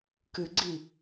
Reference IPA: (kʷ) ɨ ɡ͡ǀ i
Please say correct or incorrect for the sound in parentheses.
incorrect